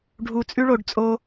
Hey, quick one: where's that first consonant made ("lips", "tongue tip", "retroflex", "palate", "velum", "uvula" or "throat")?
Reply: retroflex